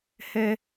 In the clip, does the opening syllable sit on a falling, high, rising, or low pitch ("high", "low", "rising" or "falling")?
high